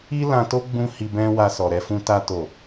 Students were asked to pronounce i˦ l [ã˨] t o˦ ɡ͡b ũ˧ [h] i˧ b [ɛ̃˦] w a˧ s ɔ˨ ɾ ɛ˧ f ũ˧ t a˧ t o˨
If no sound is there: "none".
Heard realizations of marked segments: ã˧, h, ɛ̃˦

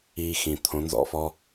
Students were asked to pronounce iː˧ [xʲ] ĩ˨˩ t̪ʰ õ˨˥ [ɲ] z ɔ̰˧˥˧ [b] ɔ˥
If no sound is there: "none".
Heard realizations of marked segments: x, n, f

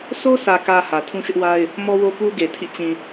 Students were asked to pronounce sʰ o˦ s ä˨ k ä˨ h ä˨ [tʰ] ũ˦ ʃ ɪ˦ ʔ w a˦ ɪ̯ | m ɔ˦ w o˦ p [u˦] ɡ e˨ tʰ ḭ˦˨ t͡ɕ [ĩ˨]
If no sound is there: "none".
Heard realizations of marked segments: tʰ, u˦, ĩ˨

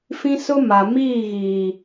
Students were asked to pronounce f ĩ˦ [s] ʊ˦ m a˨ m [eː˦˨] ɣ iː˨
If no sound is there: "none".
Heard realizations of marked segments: s, iː˦˨

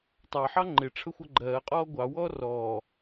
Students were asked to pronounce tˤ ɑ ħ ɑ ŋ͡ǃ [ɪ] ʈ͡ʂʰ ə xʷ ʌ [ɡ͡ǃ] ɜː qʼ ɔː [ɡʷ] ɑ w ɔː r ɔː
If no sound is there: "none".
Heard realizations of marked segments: ɪ, ɡ͡ǃ, ɡʷ

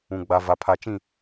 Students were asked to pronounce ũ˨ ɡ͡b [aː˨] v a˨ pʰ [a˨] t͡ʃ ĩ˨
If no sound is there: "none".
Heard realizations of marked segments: a˨, a˨

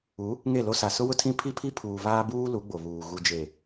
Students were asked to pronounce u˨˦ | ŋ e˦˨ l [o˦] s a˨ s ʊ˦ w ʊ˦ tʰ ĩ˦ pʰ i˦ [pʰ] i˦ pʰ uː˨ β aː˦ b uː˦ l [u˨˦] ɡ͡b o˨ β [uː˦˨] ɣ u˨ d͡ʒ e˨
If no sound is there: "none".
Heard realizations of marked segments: o˦, pʰ, u˨˦, uː˨

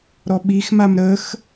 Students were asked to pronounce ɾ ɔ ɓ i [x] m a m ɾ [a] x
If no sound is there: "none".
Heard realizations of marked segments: x, ə

